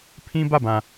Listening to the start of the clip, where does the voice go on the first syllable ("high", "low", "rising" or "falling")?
high